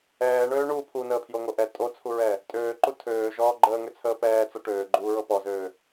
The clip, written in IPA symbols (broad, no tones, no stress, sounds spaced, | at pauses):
ɛː ɳ øː ɳ uː pʰ u n əː pʰ j o ŋ o ʔ ɛ tʼ o t͡sʰ u ɹ ɛ | tʼ øː ǃ u tʰ øː ʒ ɔː ɡ͡ǃ əː ŋ ø t͡sʰ əː p ɛː t͡s ɔ ʈ øː ɡ͡ǃ uː ɹ ɤ p ɔ z øː